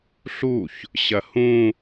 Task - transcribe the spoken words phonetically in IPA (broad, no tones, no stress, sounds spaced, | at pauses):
ɬ u ç | ɕ ɐ h ũ